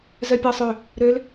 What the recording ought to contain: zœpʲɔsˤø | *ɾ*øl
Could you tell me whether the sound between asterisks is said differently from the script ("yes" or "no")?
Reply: no